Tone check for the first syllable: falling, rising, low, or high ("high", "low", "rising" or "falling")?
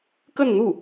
falling